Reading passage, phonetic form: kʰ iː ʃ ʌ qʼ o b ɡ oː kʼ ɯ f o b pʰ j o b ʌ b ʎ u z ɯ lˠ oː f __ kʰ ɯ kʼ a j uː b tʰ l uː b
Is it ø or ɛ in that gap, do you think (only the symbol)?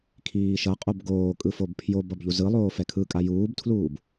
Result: ɛ